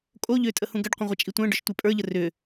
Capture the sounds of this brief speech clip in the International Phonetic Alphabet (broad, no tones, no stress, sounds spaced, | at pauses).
kʼ o ʎ ʏː tʼ ə h ũ ɡ ɐ ɖ qʷ ə̃ ʁʷ ɛ t͡ʃʼ i tʷ ə̃ː ɖ ʊ ʃ tʷ e pʼ ə˞ ʎ ə r ʏː